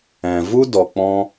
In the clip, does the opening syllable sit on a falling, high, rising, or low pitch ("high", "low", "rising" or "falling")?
low